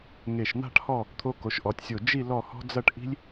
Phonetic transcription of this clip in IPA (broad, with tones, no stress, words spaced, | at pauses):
ŋe˧˩ʃn̪a̤˥˧ʈhɔ˥˧ | t̪ʰo˧ko˩˧ʃʔɔ˩˧tʲsʲo˧˩ d͡ʒi˥˧ lɔ˥˧hɔ̤˥ d͡zɐ˥˧ʈʔi̤˥lʲ